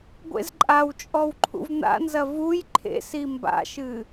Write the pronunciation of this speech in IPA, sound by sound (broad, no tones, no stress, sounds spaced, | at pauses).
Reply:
ɡʷ ḛ z ǃʼ a w t͡ʃʼ ɔ w ǃʰ ṵ v n̪ a̰ n z ɐ v u j ǃʰ ḛ s i m b a̰ ʃ ɨ